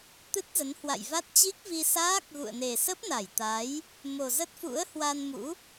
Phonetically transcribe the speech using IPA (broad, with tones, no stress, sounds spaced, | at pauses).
t̪ ɨ˦˥ t̚ z ə˨˦ n h w a̰˧˨ j v a˦˥ t̚ t͡ɕ i˦˥ k̚ v i˧ s aː˦˥ k̚ ɣ ṵ˧˨ ə̯ n e˨˩ s ə˦˥ p̚ n a˧˩ j t̪ a˨˦ j | m o˨˩ z ə˦˥ t̚ f ṵ˧˥ ə̯ h w a˧ n m ṵ˧˥